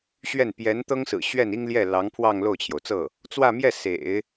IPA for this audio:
ɕ ɥ ɛ˥˩ n p j ɛ˧˥ n t̪ ɤ˥ ŋ s ɹ̩˨˩ ɕ ɥ ɛ˥˩ n i˥ ŋ l j ɛ˥˩ l ɑ˧˥ ŋ pʰ w ɑ˥˧ ŋ l o˥˩ ʊ̯ t͡ɕʰ j o˩ ʊ̯ t͡s ɤ˥˩ | t͡s w ä˥˧ m j ɛ˥˩ s ḛ˨˩˦ ɪ̯

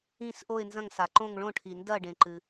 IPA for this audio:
ĩ˦˨ s ʔ o˦˨ ɪ̯ n z ɐ̃˦˨ ŋ s a˩ ǃ õ˦˨ ŋ ɭ õ˦˨ ʈʰ i˩ n d ɐ˦˨ ɖ ẽ˩ ǃ ɨ˩

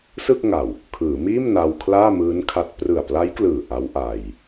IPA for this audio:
s ɯ˥˩ k̚ ŋ a˨˩ w | kʰ ɯː˩˦ m iː˥˩ m n a˧ w kʰ l aː˥˩ m ɯː˦˥ n kʰ a˦˥ t̚ p r ɯ˨˩ a̯ p l a˦˥ j k l ɯː˨˩ ʔ a˦˥ w ʔ a˧ j

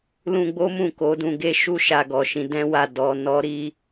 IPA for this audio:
l ũ˧ ɡ͡b o˦ m ũ˦˨ k o˨˦ d ũ˧ ɡ e˦ ʃ u˦˨ ʃ a˧ ɡ ɔ˨ ʃ ĩ˨˦ d ɛ̃˦ w a˦˨ d ɔ˧ n ɔ˦ ɾ i˦

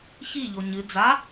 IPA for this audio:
ç i ʎ o ɲ ɨ d͡z a

